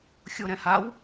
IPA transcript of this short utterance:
xʲ o ɾ ɛ̃ h a w

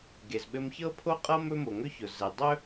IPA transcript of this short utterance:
ɡ e˩ z ɓ ɘ˧ m ç ɤ˥ pʰ o˥ qʼ ɤ˥ m ɵ˥ m o˩ ŋ ɵ˥ ç ʊ˩ z ɛ˩ dˤ ɵ˥

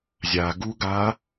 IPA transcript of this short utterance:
zʲ a ɡ u ɡ a

